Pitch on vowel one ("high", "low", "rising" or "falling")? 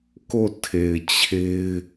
falling